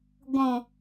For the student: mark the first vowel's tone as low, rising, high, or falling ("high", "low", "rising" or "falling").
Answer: low